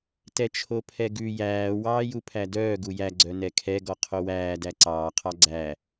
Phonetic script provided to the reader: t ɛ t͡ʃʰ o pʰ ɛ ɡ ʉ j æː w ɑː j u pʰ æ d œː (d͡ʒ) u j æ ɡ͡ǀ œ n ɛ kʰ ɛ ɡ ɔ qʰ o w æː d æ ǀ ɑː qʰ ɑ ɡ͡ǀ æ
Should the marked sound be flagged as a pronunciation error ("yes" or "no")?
yes